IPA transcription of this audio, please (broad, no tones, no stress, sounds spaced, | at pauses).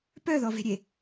p œ ð ɔ v e̤ ɾʲ e